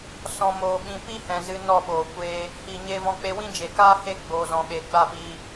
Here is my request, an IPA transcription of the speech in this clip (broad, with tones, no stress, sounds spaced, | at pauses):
s ɔ̃˨ m oː˨ ɓ ĩ˨ p i˦ h ɛ̃˨ z ɨ˧ n ɔ˦˨ ɓ oː˨ kʷ eː˧ | h iː˨ ɲ e˧ v ɔ̃˧ k͡p e˧ w ĩ˦ d͡ʒ e˨ k aː˦ h e˦˨ ɡ͡b oː˨ z ɔ̃˨ ɓ eː˨ ɡ͡b a˦˨ p iː˧